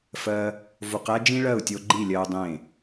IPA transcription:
fɜ˧ | vo˧qæ˦d͡ʒĩ˦ ɭɜ˦˨u̯tʲo˧ ɡ͡ǃi˦˨lʲɜ˧u̯ dˤẽ˦˨

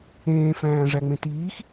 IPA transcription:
ẽːfæ̃ː ʐæŋ͡mẽtiːx

